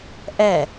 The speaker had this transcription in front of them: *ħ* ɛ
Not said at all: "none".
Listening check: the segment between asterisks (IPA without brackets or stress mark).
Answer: ʔ